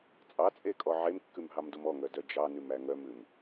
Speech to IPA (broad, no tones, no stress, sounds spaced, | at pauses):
t͡sʼ ɑ t͡sʼ e kʼ ɔ ʕ e m kː ʉ m ɦ ɑ m d o m ɔ ŋ œ d œ d͡ʒ ɑ n ʉ m æ ŋ œ m ʉ m